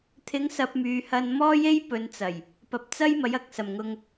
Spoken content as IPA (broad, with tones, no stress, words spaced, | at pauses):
t̪ʰɪ˨˧ŋ sɐ˧p̚myː˨hɐ˧n mɔː˥je˥j pɵ˨˧nt͡sɐ˨˩j | pɐ˨p̚t͡sɐ˥j mɐ˨˥jɐ˨k̚sɐ˨˩mŋʊ˧ŋ